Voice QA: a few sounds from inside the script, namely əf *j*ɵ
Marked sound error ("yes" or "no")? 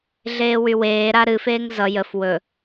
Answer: yes